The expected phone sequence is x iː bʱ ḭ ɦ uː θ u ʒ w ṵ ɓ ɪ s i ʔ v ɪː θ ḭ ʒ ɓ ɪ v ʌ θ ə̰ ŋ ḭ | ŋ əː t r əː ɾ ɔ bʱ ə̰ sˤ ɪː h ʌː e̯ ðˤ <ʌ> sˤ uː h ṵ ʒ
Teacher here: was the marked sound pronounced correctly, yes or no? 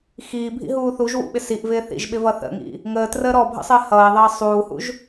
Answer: no